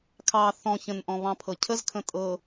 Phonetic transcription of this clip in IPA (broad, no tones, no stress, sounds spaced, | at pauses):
kʰ ɑ θ ɔ̃ ç ə̃ n ʔ ɔ̃ β ɑ̃ pʰ ɤ cʰ ə z kʰ ə̃ tʼ ɤ